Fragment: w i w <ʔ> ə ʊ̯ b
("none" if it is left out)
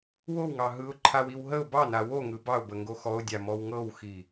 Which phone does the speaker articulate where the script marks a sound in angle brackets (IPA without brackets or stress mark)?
ɦ